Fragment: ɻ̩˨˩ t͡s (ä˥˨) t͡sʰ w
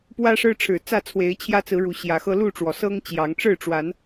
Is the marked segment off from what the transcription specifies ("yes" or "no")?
no